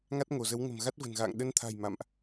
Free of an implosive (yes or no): no